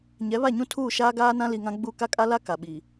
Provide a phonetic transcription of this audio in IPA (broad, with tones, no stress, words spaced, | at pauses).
ɲɛ˨˦βa˦˨ɲũ˦ tʰuː˦˨ʃaː˦ɡaː˦nã˦ li˨ŋã˦ɡ͡bu˦˨ ka˦kʼa˦la˦ ka˨ɓiː˨